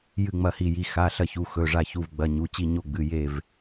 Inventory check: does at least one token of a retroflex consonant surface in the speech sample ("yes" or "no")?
yes